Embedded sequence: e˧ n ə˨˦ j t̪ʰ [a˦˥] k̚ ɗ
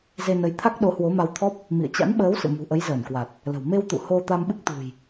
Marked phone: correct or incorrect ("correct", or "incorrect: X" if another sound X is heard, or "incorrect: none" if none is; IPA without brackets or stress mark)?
correct